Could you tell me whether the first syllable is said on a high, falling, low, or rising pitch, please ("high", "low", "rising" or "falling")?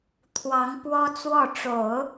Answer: rising